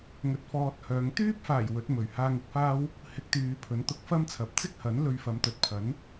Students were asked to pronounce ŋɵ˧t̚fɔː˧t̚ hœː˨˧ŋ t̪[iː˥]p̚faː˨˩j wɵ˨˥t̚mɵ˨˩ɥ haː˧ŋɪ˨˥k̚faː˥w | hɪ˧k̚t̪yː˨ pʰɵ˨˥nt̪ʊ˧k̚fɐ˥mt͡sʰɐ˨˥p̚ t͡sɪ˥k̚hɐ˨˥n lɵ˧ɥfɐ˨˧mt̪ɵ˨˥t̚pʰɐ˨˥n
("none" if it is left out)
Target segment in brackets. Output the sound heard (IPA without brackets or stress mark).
yː˥